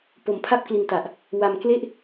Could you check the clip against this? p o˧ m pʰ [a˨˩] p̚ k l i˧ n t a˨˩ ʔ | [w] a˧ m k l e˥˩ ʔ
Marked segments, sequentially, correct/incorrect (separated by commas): incorrect, correct